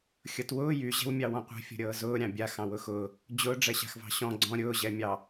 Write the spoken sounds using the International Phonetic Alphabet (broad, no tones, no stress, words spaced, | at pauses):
xʲɤtwʊː jy ʑɛ̤wmʲɑwɔ̃qʷɛ̤ fʲɔ̤ɾʲɤːzʊː ɾʲɑ̃bʲa xɑ̃wʊxʊː | d͡ʑʊː ɖ͡ʐɛɕa̤xvɑ̤ɕɔ̃ ɡ͡ǀɔ̃ ɾʲʊː ʑɛmʲɑ